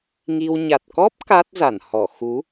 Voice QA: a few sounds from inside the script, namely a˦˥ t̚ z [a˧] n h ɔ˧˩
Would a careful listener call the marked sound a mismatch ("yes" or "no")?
yes